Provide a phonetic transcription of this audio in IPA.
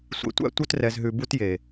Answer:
sʷ ḛ˨ tʷ æ̰˦ tʷ œ˦ t r ɛ˨ z ɦ ʉ˨ b u˦ t j e˨

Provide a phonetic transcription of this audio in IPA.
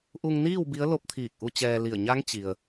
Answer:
ʔ u˧ ŋ n iː˥˨ w b i˧˥ ə̯ l o˧˥ p̚ t̪ʰ iː˧˩ k̚ ʔ u˧ t͡ɕ ɛː˧ l i˧˩ ə̯ ɲ a˧˥ ŋ t͡ɕ i˩ ə̯

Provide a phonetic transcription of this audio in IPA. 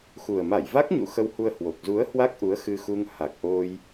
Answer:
x u˨˩ ə̯ m a˧˩ j v a˦˥ k̚ ɲ ṵ˧˨ x ə˧ w h u˧ ə̯ h w o˨˩ k̚ z u˨˦ ə̯ h w a˦˥ k̚ ʔ u˨˦ ə̯ x ɨ˧ x u˧ ŋ h a˨˩ k̚ ʔ o˧ j

